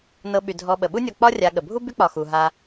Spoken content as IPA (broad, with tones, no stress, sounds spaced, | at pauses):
n ɤ˨ ɓ y˩ dʱ ɔ˨ ɓ ə˩ ɓ u˦ nʲ ɔ˨ k͡p ɒ˦ rʲ a˨ ɠ ə˩ bʱ u˥ b y˦ k͡p ɒ˩ x u˩ ɦ a˨